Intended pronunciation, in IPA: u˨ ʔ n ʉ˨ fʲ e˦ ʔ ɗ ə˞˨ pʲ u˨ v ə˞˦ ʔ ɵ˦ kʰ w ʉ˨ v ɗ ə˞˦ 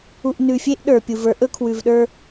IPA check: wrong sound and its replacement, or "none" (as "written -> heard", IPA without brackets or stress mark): none